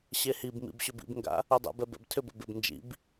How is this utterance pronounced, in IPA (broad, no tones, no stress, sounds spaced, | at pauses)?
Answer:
ɕ e h i b m ḭ b ɕ ʏ b ḭ b ŋ ɡ a̰ | u dˤ ɛ̰ b ɛ b ɛ̰ b tʰ ʏ b ɛ̰ b ɪ b n d͡ʒ ḭ b